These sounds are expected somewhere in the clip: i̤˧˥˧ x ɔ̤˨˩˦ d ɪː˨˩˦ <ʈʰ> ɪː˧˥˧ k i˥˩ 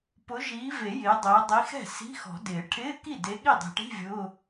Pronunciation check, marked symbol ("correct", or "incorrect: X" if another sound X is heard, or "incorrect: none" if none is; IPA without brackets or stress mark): correct